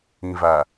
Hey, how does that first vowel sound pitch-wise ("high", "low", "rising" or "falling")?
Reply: low